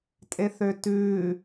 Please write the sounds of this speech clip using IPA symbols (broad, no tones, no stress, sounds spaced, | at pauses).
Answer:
tʼ e θ ø t ʉː